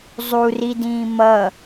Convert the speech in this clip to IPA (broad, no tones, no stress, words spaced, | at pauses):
zˤuridĩː mʌ